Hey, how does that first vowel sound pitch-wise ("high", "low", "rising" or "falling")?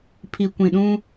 low